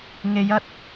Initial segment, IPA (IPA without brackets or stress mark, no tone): ŋ